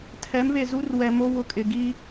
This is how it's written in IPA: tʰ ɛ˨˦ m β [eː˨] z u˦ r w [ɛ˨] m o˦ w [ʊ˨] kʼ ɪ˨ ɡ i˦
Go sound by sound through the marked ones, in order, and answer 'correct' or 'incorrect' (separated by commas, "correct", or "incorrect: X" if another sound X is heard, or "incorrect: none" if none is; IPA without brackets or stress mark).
incorrect: e˨, correct, correct